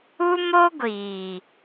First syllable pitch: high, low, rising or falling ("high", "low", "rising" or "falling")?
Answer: high